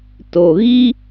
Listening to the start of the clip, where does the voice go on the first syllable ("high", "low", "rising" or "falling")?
low